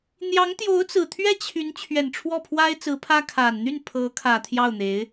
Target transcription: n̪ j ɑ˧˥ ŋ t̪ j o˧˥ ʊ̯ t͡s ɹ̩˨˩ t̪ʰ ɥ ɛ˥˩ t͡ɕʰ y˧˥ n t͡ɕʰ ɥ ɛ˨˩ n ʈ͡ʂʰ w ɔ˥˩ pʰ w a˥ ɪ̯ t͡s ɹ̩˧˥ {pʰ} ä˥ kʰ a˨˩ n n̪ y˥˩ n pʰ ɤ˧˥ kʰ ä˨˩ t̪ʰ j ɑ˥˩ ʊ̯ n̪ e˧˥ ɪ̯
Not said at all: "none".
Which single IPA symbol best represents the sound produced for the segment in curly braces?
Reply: pʰ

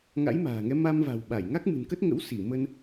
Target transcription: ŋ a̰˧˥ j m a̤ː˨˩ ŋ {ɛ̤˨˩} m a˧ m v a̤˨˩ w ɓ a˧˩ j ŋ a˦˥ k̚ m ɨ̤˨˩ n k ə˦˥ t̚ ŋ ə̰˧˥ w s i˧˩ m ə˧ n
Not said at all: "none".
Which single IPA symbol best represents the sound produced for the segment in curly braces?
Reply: ɛ˨˦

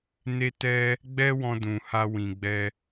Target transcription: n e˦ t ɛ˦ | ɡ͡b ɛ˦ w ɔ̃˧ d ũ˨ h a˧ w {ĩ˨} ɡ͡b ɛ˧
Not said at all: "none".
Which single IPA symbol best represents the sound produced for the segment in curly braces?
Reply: ĩ˨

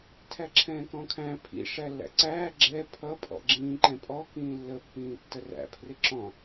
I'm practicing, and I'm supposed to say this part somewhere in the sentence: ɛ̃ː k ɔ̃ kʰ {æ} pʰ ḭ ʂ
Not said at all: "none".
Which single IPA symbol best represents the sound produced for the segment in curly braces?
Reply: æ̃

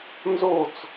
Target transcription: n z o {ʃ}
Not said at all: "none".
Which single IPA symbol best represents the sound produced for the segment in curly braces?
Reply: t͡s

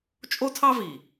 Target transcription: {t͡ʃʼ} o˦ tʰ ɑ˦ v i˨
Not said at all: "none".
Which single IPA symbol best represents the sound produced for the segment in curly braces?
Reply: t͡ʃʼ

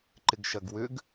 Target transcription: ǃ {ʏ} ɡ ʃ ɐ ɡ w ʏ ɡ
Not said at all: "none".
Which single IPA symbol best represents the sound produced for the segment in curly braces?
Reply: ɪ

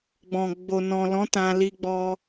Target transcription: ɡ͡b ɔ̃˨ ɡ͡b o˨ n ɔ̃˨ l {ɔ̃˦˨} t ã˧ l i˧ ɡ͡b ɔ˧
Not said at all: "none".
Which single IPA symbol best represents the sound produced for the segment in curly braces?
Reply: ɔ̃˨˦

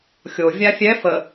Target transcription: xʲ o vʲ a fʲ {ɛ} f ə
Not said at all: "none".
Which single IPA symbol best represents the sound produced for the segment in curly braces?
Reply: ɛ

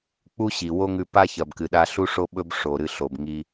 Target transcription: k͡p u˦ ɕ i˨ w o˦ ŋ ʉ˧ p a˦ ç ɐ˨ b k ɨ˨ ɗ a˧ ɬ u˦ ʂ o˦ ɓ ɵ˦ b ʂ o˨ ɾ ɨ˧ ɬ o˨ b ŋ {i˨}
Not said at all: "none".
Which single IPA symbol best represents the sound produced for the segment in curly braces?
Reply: i˧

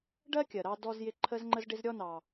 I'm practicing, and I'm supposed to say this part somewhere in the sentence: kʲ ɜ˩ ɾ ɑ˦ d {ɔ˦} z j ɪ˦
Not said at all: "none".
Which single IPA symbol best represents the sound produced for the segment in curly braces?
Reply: ɔ˦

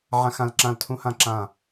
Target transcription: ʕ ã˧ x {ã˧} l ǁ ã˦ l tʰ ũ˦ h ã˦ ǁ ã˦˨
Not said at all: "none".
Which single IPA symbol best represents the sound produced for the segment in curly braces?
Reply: ã˧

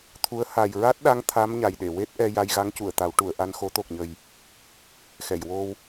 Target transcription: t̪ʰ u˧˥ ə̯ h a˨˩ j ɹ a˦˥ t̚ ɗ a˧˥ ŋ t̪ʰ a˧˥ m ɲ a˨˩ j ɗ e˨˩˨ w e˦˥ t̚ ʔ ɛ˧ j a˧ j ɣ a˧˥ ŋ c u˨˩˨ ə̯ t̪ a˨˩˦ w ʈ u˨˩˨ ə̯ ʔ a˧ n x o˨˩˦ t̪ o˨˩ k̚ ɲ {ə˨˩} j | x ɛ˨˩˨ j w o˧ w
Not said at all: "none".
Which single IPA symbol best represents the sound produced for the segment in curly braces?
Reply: ə˨˩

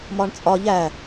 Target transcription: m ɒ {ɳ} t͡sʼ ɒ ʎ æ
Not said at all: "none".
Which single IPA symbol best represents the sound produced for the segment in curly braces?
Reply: ɳ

